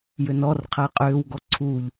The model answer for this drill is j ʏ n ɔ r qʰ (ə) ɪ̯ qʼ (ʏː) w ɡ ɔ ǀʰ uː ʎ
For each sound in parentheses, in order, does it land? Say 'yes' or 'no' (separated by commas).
yes, yes